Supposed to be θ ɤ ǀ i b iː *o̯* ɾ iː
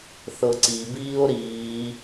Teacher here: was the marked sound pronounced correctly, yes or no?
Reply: yes